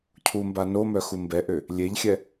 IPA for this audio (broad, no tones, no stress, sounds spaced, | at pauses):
cʰ u m b a n o m œ x u m b ɛ ʔ ø | lʲ e ʎ xʲ ɛ